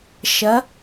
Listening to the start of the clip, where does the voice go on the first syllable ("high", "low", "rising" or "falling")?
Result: rising